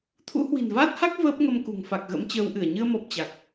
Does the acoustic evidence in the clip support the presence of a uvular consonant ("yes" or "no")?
no